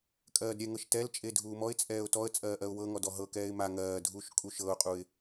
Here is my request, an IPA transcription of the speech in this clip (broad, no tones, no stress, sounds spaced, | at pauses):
kʼ ɜː d ɾʲ ɛ ŋ ɤ ʃ t ɛ l t͡ʃʼ e dʱ uː m ɔ ɪ̯ t͡sʼ ɛː ʊ̯ t ɔ ə̯ t͡sʼ ɜː ʔ ɜ ʊ̯ w ɤ ŋ ɔ d ɔ ɦ ɤ k ɛː ɪ̯ m a ŋ ɜː dʱ uː ʃ kʼ u ʃ ɤ ʊ̯ qʼ u ɪ̯